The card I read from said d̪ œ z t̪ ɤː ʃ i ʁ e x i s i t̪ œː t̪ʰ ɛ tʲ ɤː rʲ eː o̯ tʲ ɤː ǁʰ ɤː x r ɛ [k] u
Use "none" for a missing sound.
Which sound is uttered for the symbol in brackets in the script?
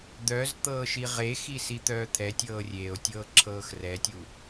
tʲ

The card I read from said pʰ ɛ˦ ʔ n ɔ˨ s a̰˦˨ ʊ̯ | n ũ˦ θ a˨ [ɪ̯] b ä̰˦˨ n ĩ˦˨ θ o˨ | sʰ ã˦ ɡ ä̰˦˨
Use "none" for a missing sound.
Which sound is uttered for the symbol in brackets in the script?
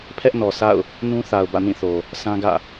ʊ̯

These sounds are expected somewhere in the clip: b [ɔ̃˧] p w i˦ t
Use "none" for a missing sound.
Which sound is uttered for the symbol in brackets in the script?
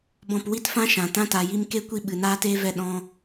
ɔ̃˦˨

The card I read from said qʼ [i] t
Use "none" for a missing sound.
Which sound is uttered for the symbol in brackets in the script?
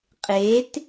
e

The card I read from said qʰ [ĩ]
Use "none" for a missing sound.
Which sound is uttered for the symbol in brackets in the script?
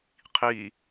i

